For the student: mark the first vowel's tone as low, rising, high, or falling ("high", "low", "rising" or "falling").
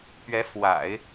rising